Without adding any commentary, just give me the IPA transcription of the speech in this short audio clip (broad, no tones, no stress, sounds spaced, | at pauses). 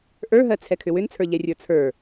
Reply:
ʔ ə˞ ɦ ɜ t͡sʰ ɛ kʰ ʏ w ʏ n t͡sʰ ə˞ ʎ ɛ rʲ ə˞ t͡sʰ ə˞